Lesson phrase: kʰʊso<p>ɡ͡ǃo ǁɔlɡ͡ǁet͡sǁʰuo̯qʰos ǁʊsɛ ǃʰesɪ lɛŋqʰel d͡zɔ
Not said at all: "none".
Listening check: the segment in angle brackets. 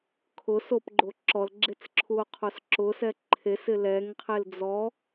p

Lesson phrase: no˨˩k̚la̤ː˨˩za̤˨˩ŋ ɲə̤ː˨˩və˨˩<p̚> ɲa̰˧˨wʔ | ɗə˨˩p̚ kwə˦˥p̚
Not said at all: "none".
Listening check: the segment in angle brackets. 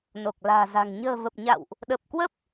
p̚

